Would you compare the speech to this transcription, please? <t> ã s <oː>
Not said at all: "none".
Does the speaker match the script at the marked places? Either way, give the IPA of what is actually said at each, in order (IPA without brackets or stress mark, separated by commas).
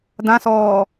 d, ɔː